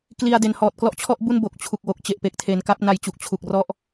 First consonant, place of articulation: velar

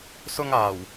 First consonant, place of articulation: alveolar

